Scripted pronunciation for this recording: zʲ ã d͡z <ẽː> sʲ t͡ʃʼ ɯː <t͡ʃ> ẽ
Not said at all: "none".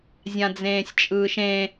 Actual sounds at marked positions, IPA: ẽː, ʃ

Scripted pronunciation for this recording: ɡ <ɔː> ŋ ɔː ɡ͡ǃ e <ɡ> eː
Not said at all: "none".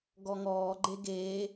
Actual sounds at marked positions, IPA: ɔ, ɡ

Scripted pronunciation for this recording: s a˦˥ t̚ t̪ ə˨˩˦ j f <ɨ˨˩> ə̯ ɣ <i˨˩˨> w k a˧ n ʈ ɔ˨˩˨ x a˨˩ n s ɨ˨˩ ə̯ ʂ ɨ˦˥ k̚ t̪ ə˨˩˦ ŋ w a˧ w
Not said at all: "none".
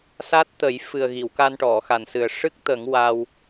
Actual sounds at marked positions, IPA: ɨ˨˩, i˨˩˨

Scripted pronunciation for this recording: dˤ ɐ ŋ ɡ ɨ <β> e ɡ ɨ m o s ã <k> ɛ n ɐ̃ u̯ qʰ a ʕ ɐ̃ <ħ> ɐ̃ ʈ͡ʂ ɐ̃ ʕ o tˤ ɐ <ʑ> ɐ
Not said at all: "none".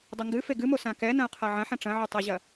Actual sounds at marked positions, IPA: f, k, ħ, ʑ

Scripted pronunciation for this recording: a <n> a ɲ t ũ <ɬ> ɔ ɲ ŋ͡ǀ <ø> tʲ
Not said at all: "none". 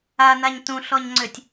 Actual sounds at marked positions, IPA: n, ɬ, ø

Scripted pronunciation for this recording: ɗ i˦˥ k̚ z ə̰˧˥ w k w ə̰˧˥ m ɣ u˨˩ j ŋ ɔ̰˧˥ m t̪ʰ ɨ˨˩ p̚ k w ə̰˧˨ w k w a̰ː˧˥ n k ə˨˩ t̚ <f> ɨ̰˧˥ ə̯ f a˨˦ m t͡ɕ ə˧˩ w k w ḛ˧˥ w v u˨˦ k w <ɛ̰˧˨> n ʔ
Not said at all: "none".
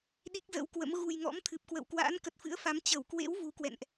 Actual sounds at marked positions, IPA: f, ɛ̰˧˨

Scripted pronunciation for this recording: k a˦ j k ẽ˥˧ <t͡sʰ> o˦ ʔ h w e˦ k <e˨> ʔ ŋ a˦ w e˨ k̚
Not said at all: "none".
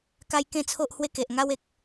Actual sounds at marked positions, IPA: t͡sʰ, e˨

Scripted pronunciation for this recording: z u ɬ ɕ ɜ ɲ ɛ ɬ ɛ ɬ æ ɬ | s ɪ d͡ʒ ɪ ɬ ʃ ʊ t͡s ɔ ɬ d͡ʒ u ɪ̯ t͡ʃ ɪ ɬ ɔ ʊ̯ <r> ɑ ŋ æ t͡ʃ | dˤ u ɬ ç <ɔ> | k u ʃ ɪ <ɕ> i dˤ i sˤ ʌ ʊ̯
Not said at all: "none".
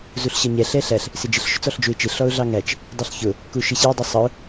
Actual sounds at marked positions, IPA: ɮ, ʊ, ɕ

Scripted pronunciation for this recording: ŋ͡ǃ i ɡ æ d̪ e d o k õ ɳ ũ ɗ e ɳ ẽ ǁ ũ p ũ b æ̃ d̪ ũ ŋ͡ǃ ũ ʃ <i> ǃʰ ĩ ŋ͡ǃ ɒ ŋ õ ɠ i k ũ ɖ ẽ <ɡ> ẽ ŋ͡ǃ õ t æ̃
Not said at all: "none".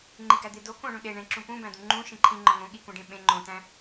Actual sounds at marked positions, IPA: ĩ, ɓ

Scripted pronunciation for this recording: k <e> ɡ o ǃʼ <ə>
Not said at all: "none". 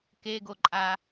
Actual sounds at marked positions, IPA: e, a

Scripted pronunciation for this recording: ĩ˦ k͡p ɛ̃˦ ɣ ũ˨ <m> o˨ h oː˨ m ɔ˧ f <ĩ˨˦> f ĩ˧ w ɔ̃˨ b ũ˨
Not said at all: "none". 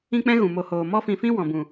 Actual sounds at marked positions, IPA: m, ĩ˨

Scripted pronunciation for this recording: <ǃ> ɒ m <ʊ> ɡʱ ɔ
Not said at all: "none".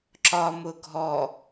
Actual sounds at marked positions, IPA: ǁ, ʊ

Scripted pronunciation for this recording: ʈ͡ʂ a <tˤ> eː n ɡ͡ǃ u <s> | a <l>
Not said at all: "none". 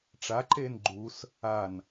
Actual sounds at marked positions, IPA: ǃ, s, n

